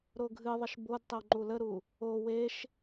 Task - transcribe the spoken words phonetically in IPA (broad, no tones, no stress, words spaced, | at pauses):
ɾoɡʱɨðˤəʃ bod tˤewŋ͡ǃuləɾu | o weʃ